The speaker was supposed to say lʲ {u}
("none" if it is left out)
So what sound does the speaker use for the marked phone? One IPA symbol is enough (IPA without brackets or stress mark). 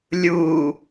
u